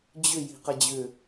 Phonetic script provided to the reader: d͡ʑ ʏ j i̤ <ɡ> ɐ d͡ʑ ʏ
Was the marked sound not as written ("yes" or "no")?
yes